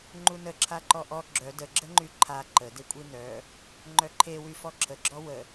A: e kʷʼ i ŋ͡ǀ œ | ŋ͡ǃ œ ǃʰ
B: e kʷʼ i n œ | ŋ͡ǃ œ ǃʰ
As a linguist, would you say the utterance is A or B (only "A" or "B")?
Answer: B